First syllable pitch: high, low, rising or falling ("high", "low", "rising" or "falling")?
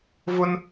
high